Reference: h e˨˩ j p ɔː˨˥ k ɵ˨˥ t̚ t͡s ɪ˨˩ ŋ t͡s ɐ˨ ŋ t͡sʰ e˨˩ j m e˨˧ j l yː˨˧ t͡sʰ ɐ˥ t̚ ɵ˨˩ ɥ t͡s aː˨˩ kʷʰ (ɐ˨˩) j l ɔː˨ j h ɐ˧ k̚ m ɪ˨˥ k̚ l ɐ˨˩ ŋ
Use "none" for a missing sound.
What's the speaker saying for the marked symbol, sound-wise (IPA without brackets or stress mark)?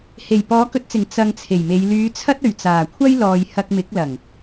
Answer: ɐ˥